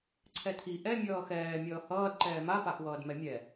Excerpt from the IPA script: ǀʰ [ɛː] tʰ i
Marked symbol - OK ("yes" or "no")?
no